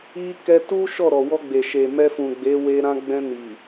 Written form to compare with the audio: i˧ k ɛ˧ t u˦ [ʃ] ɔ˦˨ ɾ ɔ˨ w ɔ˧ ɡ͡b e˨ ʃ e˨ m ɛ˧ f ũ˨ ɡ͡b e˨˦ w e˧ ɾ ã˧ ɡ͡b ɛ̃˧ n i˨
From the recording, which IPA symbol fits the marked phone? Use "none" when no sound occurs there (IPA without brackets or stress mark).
ʃ